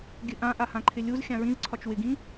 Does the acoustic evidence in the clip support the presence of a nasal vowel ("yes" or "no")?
yes